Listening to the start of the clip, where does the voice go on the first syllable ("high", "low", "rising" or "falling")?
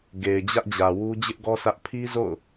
low